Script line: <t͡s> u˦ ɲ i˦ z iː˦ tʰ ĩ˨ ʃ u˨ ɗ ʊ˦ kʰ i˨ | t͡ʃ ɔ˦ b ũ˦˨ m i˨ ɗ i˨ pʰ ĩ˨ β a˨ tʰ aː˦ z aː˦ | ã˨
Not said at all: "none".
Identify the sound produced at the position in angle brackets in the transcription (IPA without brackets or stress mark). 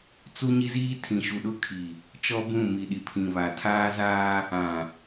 t͡s